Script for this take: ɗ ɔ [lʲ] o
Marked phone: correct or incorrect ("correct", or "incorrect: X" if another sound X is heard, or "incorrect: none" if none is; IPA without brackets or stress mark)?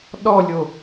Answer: correct